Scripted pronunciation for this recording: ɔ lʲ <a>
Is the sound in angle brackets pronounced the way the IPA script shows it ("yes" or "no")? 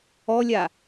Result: yes